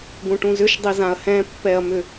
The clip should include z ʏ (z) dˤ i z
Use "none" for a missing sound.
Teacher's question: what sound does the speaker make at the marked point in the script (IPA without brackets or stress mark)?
ʃ